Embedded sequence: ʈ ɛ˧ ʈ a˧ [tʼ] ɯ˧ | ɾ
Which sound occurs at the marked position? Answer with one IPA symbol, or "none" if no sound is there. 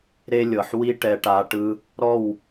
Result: ʈ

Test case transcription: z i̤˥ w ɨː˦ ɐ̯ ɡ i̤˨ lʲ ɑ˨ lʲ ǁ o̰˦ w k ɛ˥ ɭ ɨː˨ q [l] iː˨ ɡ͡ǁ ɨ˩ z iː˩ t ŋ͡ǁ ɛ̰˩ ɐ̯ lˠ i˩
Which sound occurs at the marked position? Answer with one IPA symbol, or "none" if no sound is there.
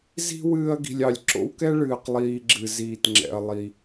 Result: lˠ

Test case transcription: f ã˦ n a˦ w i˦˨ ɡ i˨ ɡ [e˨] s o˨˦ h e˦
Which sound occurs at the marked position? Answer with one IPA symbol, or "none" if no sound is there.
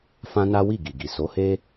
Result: i˨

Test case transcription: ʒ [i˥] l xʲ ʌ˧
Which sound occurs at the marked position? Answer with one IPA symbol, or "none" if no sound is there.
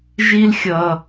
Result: i˥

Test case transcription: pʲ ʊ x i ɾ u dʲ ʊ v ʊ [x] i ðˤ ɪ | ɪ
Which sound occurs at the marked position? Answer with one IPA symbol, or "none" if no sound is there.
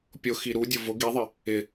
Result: ɡ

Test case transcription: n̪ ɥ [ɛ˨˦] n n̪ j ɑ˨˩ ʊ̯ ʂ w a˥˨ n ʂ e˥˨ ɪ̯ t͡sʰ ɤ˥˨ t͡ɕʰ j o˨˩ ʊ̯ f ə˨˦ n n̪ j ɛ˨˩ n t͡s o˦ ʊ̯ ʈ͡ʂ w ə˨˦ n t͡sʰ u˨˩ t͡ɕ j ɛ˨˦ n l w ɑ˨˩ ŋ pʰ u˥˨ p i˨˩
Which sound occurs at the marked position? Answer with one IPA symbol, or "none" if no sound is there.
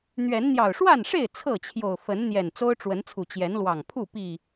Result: ɛ˨˦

